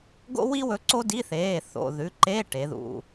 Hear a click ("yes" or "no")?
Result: yes